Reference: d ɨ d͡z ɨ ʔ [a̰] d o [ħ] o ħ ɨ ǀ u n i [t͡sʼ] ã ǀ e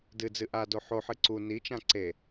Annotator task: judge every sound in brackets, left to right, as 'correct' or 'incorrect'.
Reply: incorrect, correct, incorrect

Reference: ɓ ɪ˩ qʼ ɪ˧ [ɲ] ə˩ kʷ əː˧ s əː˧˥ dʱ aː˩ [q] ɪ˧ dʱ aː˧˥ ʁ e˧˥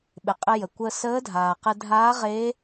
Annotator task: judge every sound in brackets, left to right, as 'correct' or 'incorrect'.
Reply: incorrect, correct

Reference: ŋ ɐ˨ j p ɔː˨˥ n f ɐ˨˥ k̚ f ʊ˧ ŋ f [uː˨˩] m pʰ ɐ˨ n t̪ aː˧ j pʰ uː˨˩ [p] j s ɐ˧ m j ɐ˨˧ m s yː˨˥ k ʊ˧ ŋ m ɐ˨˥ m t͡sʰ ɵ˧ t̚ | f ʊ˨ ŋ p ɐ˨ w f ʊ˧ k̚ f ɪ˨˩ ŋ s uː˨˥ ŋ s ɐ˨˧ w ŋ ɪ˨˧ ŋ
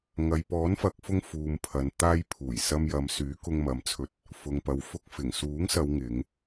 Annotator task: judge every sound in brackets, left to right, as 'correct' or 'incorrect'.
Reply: incorrect, incorrect

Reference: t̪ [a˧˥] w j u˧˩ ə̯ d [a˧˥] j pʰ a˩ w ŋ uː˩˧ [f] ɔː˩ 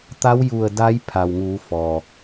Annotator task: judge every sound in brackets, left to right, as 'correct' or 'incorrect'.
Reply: correct, correct, correct

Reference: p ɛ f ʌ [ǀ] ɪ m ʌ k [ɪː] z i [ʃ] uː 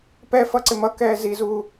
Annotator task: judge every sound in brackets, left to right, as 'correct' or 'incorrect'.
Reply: correct, incorrect, incorrect

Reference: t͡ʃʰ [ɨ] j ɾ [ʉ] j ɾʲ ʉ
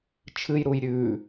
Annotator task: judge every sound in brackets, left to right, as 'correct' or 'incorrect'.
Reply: correct, incorrect

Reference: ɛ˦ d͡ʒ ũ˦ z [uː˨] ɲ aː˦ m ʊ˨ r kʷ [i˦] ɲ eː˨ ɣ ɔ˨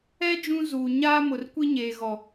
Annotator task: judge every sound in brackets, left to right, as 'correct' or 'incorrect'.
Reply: correct, correct

